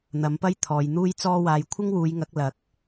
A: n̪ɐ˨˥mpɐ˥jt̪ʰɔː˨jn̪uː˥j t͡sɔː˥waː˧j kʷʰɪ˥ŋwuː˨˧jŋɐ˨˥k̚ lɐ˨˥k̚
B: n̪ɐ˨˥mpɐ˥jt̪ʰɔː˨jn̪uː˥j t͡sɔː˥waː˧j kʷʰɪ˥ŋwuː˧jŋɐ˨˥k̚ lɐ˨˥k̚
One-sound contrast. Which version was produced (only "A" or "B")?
A